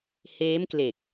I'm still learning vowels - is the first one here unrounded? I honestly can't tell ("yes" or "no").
yes